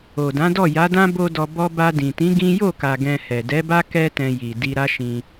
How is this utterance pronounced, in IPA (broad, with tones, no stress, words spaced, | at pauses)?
o˨dã˨˦ dɔ˦˨ja˨˦dã˦ bo˧ dɔ˧bɔ˦ ba˧dĩ˨tĩ˨˦ ɡĩ˦ jo˦˨ka˨ ɡɛ̃˧hɛ˨ dɛ˨˦ba˦ kɛ˦tɛ̃˧ji˨ di˧ɾa˦ʃĩ˧